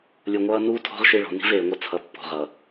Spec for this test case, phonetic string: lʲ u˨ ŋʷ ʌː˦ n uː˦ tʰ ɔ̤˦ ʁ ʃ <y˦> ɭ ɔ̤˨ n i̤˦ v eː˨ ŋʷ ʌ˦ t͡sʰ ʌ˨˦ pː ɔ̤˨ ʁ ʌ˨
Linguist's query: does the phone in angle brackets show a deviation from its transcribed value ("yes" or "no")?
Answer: yes